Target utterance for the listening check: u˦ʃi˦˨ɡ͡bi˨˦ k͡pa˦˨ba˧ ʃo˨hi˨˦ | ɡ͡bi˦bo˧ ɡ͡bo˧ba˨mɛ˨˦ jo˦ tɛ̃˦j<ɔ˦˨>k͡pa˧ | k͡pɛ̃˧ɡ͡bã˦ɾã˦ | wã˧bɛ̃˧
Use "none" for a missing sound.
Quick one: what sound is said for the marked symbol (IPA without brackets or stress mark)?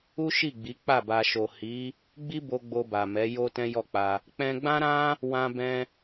ɔ˦˨